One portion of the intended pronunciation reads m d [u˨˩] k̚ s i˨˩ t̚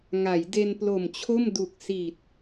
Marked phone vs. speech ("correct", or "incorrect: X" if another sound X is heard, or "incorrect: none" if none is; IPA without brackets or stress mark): correct